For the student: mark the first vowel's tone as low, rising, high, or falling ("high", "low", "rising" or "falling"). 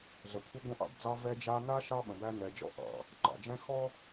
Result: low